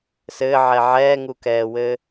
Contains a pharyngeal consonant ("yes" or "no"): yes